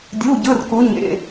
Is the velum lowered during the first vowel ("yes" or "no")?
no